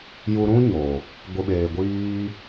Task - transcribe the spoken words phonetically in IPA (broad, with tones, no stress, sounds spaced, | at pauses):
j u˧ ɾ ũ˦ ɲ o˨ | ɡʷ ɨ˨ ɓ eː˨ ɡʷ iː˧